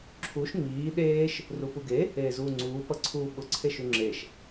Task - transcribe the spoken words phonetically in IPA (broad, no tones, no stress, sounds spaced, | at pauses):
ǁʰ u ʃ ŋ͡m iː ɗ eː ʃ | r u p u ɡ e | eː z uː ŋ͡ǀ uː p ʌ ǀʰ uː ɓ ʊ ǀʰ e ʃ ʉ ŋ͡ǁ e ʃ